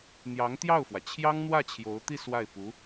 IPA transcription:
n̪ j ɑ˧˥ ŋ t̪ j ɑ˥˩ ʊ̯ f w ä˩ t͡ɕʰ j ɑ˥ ŋ n̪ w ä˥˩ t͡ɕʰ j o˧˥ ʊ̯ t̪ i˥˧ s w a˥˩ ɪ̯ p u˧˥

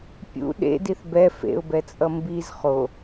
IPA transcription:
pʲ ṵ ɗ ḛ d i θ b ɛ f ḛ ʊ̯ b ɛ t͡sʼ ʌ m b i z χ o

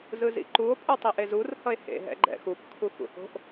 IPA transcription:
z ɯ z ḭ ǃ u o̯ pʼ u tˤ i ʔ e z u r h ʌ e̯ h ḛ ɦ ɛ̰ ɡ͡ǃ ɛ̰ x u p kʰ u x ṵ h o̤ ʔ

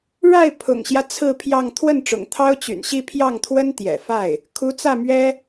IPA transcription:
ɻ a˥˩ ɪ̯ pʰ ʊ̰˨˩ ŋ ɕ j ä˦ t͡sʰ ɹ̩˥˧ pʰ j ɑ˥˧ ŋ t̪ʰ w ə˥˩ n ʈ͡ʂ ʊ̰˨˩ ŋ t̪ʰ ɑ˥ ʊ̯ t͡ɕ y̰˨˩ n ɕ i˥˧ pʰ j ɑ˥˩ ŋ t̪ʰ w ə˥ n t̪ j ɛ̰˨˩ f a˥˩ ɪ̯ | kʰ u˧˥ t͡s ä˥˩ m ɥ ɛ˥

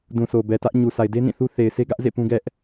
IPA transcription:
d ũ˨ s o˨ b ɛ˨ t ä˦ ʔ ɲ u˨ s a˨ ɪ̯ d e˦ n ĩ˦˨ θ u˦ θ e˨ ɪ̯ s e˦ ɡ ä˦ ʔ z ḛ˦˨ p ũ˦ ɡ ɛ˦ ʔ

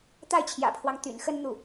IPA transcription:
t̪ a˥˩ ɪ̯ t͡ɕʰ j ä̰˨˩ pʰ w ɑ˦ ŋ t̪ y̰˨˩ n x ə˥ n n̪ u˥˩

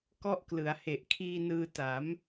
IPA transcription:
k ɔ˦˥ ʔ k l ɯ˩˦ a̯ h e˨˩ ʔ kʰ iː˧ n ɯː˧ t a˩˦ m

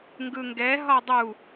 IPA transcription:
ŋ ɡ ɯ ŋ ɡ ɛ ɦ ɒ dˤ u

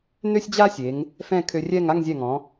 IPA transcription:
n ø˥ sʲ d͡ʑ a˥ sʲ e˩˧ ŋ | f ɛ̃˥˧ kʰ ø˧ rʲ ɛ˥˧ ŋ a˥˧ ŋ zʲ ɛ˧˩ ŋ ɔ̃˩˧

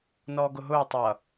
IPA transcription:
n ɔː ɡ ʊ ɦ ʊː tˤ ʌ

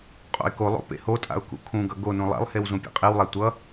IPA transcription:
qʼ o̰ ɪ̯ k o lˠ o̰ p ḛ h o tʼ a̰ ʊ̯ k ṵ kʰ ũ ɡ ʌ ɡ o n ũ lˠ a̰ lˠ h e w z ũ pʲ ḛ qʼ e w lˠ a tʷ ʌ

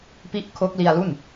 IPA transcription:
p i˦˥ ʔ kʰ o˦˥ k̚ l i˧ a̯ l u˥˩ n

